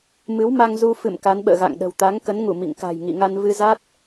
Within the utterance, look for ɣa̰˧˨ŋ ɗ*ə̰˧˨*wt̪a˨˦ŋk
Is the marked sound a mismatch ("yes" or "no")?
yes